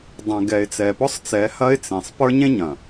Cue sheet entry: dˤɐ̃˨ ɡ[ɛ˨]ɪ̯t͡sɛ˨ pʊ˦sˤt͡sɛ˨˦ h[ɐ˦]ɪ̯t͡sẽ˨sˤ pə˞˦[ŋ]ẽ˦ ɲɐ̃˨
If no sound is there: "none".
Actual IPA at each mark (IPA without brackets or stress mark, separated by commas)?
ɛ˨, ɐ˦, ɲ